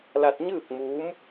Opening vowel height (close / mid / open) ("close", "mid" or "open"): open